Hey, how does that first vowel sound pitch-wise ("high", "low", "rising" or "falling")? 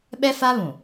high